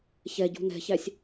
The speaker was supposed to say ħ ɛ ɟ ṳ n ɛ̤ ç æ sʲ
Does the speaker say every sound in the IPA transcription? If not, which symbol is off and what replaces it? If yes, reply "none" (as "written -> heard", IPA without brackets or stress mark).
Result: ħ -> ç